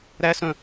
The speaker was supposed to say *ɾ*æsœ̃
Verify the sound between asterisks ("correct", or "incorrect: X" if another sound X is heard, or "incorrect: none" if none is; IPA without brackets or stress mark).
correct